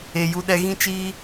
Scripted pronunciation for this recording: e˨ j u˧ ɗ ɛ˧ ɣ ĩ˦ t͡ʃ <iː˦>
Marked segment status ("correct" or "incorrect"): correct